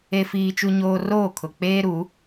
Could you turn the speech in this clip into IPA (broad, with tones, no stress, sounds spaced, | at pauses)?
e˦ f iː˦ t͡ʃ u˦ ɲ oː˦ r oː˦˨ kʰ ʊ˨ k͡p eː˦ ɾ u˨˦